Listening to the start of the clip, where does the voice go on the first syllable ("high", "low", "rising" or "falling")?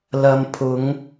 low